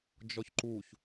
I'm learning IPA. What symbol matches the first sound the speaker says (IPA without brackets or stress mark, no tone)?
d͡ʒ